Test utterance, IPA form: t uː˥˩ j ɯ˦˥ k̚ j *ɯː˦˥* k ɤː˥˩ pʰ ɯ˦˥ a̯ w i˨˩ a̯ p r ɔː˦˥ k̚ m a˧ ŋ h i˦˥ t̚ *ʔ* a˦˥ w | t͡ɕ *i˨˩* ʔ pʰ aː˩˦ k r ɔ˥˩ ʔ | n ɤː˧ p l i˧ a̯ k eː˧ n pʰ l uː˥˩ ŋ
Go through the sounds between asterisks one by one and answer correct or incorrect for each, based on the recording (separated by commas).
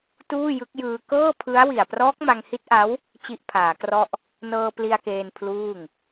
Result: incorrect, correct, incorrect